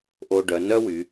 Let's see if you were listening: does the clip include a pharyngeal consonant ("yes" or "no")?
no